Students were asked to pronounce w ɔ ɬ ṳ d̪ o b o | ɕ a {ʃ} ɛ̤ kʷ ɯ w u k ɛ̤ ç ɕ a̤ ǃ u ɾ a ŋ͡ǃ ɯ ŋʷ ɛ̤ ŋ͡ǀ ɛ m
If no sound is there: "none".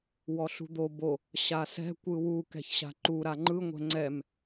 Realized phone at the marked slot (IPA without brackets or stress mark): s